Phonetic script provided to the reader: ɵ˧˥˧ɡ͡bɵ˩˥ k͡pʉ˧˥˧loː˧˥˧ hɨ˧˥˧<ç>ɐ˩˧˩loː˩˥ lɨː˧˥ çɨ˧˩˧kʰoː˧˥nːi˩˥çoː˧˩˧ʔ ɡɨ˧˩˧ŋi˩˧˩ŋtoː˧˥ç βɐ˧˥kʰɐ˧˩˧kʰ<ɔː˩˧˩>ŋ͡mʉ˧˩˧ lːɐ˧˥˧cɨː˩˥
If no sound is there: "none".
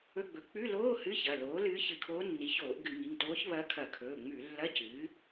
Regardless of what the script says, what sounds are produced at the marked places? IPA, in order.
ç, ɵː˩˧˩

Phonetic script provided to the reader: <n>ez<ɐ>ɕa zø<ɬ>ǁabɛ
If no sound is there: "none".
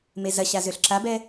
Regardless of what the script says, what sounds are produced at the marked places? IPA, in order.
m, ɐ, ɬ

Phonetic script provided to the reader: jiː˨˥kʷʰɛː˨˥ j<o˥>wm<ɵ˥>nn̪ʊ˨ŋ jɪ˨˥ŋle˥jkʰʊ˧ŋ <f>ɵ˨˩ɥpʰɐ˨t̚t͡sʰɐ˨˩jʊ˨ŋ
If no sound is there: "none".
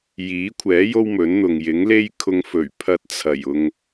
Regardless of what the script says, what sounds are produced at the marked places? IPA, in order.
o˥, ɵ˨˥, f

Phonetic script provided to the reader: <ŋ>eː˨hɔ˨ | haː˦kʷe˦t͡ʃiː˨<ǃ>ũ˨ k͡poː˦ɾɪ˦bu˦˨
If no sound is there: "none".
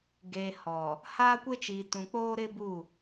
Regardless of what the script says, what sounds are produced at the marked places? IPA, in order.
ɡ, t

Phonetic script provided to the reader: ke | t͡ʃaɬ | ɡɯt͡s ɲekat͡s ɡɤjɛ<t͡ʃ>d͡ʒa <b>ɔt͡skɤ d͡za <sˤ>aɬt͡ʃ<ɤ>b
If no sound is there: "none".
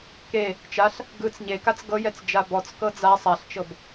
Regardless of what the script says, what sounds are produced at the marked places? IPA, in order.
t͡s, b, sˤ, ɤ

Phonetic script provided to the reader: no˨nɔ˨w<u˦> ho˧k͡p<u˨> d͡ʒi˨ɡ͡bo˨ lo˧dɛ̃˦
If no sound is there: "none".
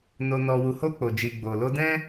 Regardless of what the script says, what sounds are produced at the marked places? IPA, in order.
u˨, o˨

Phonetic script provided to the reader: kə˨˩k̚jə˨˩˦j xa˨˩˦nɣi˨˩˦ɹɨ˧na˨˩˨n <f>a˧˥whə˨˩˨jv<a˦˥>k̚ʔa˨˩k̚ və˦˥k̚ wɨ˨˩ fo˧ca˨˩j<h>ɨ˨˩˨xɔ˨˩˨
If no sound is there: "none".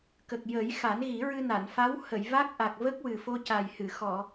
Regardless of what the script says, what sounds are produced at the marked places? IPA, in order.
f, a˦˥, h

